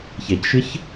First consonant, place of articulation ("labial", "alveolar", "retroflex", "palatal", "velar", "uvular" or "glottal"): palatal